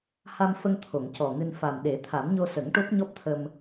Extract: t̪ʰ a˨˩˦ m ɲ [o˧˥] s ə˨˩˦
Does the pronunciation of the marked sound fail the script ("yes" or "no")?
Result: yes